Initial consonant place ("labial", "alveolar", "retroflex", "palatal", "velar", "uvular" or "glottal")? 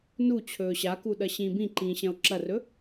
alveolar